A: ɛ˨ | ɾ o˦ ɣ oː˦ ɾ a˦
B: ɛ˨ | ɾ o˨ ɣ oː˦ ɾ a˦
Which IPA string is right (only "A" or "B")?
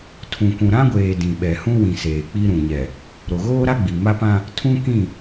B